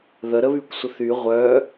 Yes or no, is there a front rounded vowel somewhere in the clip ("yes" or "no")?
yes